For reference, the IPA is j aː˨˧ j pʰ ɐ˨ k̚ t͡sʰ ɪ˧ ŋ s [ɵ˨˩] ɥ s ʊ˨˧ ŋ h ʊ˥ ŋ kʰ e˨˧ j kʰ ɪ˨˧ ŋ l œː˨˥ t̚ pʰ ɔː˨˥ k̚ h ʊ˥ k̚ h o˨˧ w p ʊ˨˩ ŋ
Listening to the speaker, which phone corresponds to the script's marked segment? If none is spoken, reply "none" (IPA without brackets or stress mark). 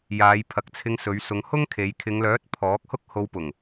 ɵ˨˧